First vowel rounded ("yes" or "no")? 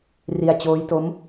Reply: no